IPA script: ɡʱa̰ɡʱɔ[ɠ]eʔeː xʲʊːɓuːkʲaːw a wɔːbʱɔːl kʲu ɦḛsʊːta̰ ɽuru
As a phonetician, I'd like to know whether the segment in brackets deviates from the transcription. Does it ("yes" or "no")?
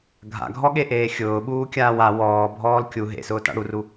no